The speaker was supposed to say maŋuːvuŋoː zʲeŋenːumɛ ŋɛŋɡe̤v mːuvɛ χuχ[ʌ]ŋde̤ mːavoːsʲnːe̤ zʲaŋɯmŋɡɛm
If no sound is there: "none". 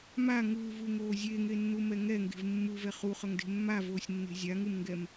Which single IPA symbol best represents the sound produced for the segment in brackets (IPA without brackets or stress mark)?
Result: ʌ